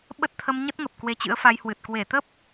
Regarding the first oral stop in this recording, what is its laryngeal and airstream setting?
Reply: implosive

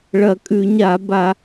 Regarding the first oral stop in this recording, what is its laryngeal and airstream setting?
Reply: ejective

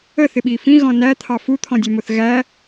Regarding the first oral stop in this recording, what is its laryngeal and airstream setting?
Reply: implosive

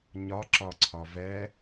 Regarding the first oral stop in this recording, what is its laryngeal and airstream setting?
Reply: click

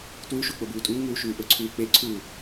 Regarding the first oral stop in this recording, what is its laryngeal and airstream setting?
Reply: plain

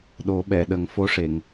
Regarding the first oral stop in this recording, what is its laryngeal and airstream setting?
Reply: implosive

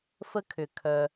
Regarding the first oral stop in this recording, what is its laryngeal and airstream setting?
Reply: aspirated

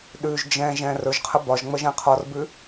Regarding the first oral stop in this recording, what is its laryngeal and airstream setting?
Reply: implosive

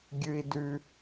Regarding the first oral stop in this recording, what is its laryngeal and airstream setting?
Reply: plain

